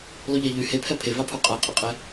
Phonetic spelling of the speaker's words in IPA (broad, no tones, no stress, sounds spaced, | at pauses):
lˠ y ʎ a ʎ y h e pʰ ɛ pʰ e v a pʰ u qʼ a qʼ e qʼ ɛ